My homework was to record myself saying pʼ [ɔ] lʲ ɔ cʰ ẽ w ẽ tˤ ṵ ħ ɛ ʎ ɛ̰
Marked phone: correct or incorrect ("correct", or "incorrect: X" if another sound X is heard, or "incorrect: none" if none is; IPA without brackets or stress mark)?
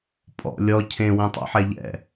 incorrect: ɔ̰